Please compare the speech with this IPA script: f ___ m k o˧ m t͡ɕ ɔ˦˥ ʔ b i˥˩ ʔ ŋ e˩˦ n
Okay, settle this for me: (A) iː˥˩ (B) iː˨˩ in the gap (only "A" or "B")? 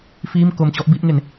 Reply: A